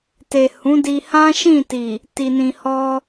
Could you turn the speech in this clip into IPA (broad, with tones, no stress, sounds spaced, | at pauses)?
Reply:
t e˨ h ũ˨˦ d i˧ h ã˦ ʃ ĩ˦˨ t i˨ | t i˨ n ĩ˨ h ɔ˧